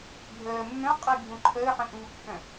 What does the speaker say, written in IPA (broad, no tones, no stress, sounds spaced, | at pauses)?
ɡʱ əː mː œ̃ qʼ i ɡʱ ũ ǃʰ əː ħ ə̃ ʔ u pː œ̃